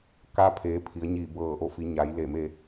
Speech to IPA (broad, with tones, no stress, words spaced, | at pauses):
kaː˧˥pʰeː˩˧ pʰi˩˧ə̯ɲiː˧˩ bɤː˧˩ʔo˧˩fi˩˧ ɲa˩˧jle˧˩me˧